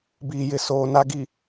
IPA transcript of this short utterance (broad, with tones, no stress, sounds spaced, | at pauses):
b iː˨ j ɪ˨ s oː˨ n a˨ ɡ i˨